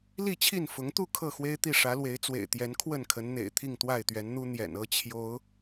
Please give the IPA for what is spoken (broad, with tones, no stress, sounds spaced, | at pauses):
l i˥˨ t͡ɕʰ i˥˨ n f ʊ˨˦ ŋ t̪ u˥˨ kʰ ɤ˥˨ x w e˦ ɪ̯ t̪ i˥˨ ʂ ä˨˦ l w e˨˦ ɪ̯ t͡s w ḛ˨˩ ɪ̯ t̪ j ɛ˨˦ n kʰ w ə˥˨ n kʰ ə˨˦ n n̪ ḛ˨˩ ɪ̯ t̪ʰ i˥˨ ŋ t̪ w a˥˨ ɪ̯ t̪ ɥ ɛ˨˦ n n̪ u˦ n̪ j ɛ̰˨˩ n ɤ˦ t͡ɕʰ j o˨˦ ʊ̯